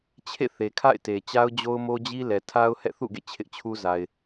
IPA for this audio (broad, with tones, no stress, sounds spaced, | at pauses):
t͡ɕʰ ḛ˦˨ θ e˨ kʰ a̰˦˨ ɪ̯ t e˨ t͡ɕ a˦ ʊ̯ d͡ʑ o˦ ʊ̯ m o˦ d͡ʑ i˦ l ɛ˨ tʰ a˦ ʊ̯ h ɛ̰˦˨ θ ṵ˦˨ ɡ ḛ˦˨ t͡ɕʰ ɪ˦ ʔ t͡ɕʰ u˦ z a˨ ɪ̯